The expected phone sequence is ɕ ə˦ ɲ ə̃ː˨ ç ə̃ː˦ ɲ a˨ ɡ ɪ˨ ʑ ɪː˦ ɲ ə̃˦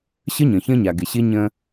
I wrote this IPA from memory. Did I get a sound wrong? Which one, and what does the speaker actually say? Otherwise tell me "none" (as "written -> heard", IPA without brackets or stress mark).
ʑ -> ɕ